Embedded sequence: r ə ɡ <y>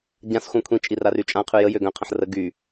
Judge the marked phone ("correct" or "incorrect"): correct